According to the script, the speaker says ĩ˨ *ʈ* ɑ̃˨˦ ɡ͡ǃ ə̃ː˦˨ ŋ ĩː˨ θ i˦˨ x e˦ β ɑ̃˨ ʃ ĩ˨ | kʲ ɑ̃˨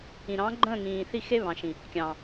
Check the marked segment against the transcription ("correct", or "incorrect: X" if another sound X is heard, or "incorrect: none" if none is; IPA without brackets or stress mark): incorrect: ɾ